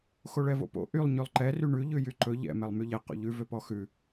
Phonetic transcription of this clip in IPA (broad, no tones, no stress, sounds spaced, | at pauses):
x o ɭ ɛ v o̰ p o̰ ʔ y lˠ ɲ ʉ lˠ ǃ ɛ r y ɳ ʉ ʎ ʉ j y ǃ ɵ ʎ ɛ̰ m ɛ lˠ m y ʎ ɛ q o̰ ʎ ʉ v ø p ɔ x ʉ